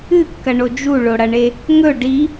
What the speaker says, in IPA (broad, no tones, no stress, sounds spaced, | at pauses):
ɨ kː ɐ ɳ o d͡ʒ u ɭ o ɽ ɐ ɳ e | ŋ ɵ ɖ i